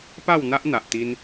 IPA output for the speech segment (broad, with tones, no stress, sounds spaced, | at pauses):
p a˥˧ w n̪ a˦ ʔ n̪ a˨ ʔ t̪ i˧ n